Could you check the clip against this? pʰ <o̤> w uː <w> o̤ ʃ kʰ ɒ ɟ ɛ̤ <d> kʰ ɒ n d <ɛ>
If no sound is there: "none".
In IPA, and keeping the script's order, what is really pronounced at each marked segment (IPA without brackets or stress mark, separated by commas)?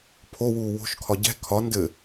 o, w, none, ɘ